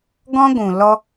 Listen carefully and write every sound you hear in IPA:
ɡɔ̃˦ɡʷũ˨ lɔ˦

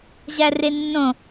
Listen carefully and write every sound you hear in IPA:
ʑærenːõ

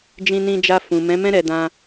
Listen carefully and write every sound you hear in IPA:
d͡ʒĩ˧nĩ˧d͡ʒa˧ fũ˨mɛ̃˨˦mɛ̃˦ ɾɛ˧dã˧

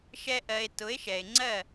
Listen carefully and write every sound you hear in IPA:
ʃɛ˧ʔɜ˨e̯ tʊ˨˦e̯ʃɛ˨e̯ ŋ͡ǀɜ˦˨

